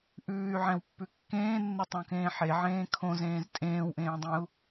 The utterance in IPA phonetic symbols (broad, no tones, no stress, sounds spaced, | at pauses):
ʔ ʉː y̯ ʕ ɛ̃ w pː ʉ kː ẽː nː ɛ tˤ õ k ẽː ħ e ʕ ẽː kʰ õ z ẽː z tʼ ẽː w ʔ ẽː dˤ ẽ u̯